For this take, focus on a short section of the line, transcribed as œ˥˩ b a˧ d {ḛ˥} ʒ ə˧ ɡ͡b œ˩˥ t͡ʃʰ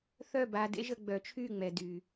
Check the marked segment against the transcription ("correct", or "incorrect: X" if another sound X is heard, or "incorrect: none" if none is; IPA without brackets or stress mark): correct